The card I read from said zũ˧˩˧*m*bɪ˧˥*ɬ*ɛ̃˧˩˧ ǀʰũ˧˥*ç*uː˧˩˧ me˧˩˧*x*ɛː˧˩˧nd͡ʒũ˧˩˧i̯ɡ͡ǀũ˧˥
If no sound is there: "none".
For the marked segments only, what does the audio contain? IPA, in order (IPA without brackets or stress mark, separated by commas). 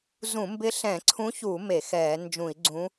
m, ɬ, ç, x